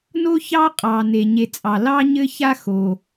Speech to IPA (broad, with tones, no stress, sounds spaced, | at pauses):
n o˥ ç ɑ˥ qʼ ɑ˩ n e˩ ɲ e˨ t͡sʼ ɑ˩ l ɑ˥ ɲ ɘ˥ ç a˥ x o˩